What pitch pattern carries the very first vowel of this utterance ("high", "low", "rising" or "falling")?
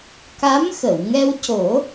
rising